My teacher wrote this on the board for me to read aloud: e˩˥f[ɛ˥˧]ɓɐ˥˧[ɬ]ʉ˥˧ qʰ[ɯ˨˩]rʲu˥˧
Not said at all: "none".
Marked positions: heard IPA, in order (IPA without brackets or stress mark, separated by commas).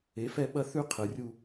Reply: ɛ˥˧, θ, ɯ˨˩